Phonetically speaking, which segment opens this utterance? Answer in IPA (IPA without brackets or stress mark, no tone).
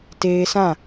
t